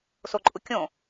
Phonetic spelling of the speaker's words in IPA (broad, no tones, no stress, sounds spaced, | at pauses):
s o ǃʼ u kʲ õ